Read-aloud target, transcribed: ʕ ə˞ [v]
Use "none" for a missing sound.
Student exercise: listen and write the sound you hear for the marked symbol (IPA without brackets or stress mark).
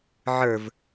v